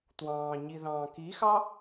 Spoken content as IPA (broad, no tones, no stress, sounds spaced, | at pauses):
t w ɑ̃ː ɲ i ð ɑ̃ː k i x ɑ